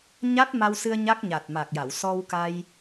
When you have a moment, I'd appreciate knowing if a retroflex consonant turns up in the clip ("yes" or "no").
no